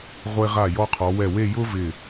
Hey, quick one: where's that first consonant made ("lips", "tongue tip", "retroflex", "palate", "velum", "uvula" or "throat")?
uvula